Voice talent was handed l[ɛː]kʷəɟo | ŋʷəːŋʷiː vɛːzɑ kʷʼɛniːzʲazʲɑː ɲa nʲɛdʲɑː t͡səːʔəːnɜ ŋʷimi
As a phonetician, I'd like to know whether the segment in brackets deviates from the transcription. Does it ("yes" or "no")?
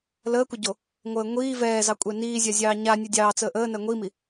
yes